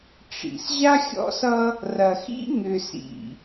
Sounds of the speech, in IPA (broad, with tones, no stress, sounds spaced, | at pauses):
ʈ͡ʂ ḭ˨ s ʑ a˦ xʲ ɔ̰˦ s ʌ˦ | r ɐ˨ x ḭ˦ ŋ ʏ˨ s ḭ˨